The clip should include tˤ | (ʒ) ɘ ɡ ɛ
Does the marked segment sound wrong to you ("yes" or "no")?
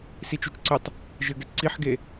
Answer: no